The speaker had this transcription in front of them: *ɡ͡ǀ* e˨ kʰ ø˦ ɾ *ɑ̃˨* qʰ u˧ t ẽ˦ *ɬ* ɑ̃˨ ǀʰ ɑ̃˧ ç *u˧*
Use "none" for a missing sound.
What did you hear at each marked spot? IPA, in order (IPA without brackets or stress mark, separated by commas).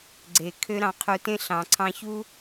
ɡ͡ǀ, ɑ̃˧, ɬ, u˦